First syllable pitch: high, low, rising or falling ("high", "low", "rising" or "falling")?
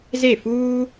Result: falling